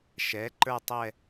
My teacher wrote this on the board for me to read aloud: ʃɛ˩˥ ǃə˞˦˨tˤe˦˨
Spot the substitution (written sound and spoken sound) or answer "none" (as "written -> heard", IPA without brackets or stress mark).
e˦˨ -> ɛ˦˨